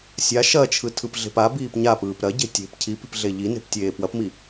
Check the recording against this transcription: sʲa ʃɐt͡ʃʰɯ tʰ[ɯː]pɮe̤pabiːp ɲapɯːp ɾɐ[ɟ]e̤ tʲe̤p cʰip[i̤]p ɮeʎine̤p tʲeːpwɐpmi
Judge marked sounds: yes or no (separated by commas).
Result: no, yes, yes